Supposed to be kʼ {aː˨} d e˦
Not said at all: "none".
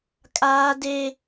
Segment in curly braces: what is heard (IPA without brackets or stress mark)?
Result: aː˦